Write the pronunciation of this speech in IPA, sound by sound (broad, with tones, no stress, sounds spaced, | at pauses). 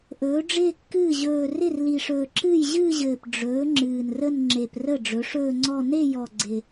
ʔ ɵː˩˥ ɖ͡ʐ ɪː˥˧ kː ɨː˥˩ ʑ ɵː˨˩ r ɪ˥˩ r l i˨˩ ʂ ɵː˨˩ ǁ ɨː˥˩ j ʑ ɨː˥˧ ʑ ɘː˨˩ p ɖ͡ʐ ɵː˩˥ ŋ͡ǁ ɨː˨˩ n r ə˥˧ n ŋ͡ǁ e˨˩ p r ə˥˩ ɖ͡ʐ ɵ˩˥ ʂ ɵː˥˧ ŋ͡ǀ ɔ˥˧ n e˥˧ j ɔ˨˩ ɡ͡ǀ ɪ˨˩